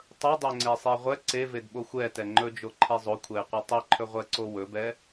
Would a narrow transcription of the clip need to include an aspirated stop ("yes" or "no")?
yes